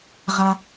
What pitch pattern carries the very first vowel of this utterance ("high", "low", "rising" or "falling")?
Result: low